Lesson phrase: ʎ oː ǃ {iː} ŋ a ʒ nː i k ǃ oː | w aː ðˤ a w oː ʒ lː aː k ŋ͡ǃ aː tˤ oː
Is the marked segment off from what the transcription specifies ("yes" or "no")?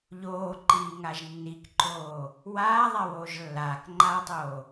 no